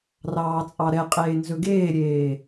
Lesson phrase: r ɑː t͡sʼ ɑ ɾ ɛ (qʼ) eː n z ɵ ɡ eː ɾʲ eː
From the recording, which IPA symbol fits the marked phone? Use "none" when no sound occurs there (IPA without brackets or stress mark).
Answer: qʼ